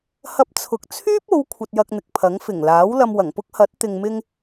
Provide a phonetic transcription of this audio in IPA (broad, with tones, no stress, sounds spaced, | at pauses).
h ɐ˧ p̚ t͡sʰ ʊ˨˥ k̚ t͡sʰ yː˥ p̚ o˨˧ w kʷʰ ɐ˧ t̚ j ɐ˧ k̚ n̪ ɪ˨ k̚ pʰ ɐ˨˥ ŋ f ɪ˨˩ ŋ l aː˨˥ w l ɐ˧ m w ɐ˨˩ ŋ p ʊ˥ k̚ h ɐ˨˥ t̚ t̪ ɪ˨ ŋ m ɪ˧ ŋ